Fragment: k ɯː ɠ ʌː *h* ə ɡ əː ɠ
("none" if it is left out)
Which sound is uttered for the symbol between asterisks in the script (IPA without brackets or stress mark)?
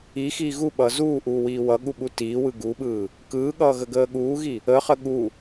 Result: ɣ